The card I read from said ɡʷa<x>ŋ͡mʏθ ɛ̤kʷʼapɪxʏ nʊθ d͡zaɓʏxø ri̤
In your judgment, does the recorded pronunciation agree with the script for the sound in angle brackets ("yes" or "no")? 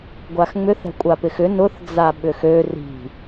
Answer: yes